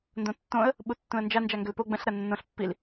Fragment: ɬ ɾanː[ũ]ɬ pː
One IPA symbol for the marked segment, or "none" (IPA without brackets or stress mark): õ